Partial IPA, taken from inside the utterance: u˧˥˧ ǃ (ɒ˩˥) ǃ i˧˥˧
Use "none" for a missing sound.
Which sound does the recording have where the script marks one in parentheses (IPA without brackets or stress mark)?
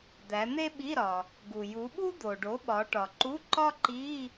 ɒ˥